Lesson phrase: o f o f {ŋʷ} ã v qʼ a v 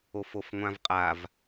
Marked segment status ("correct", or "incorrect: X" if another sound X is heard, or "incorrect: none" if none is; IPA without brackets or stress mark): correct